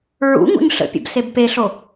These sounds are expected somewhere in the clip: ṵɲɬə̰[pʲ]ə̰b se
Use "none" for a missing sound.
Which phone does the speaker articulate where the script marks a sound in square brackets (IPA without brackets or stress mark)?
pʲ